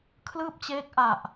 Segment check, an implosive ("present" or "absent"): absent